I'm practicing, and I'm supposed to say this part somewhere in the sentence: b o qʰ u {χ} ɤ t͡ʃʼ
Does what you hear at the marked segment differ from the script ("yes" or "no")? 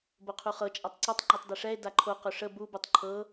no